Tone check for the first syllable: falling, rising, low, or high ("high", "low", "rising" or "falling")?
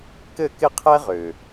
falling